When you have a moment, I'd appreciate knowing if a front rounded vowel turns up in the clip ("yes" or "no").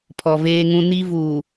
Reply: no